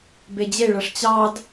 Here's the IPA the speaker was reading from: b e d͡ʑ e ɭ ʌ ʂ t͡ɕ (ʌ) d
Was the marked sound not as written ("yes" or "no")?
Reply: yes